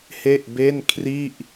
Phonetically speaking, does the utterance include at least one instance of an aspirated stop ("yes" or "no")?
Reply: yes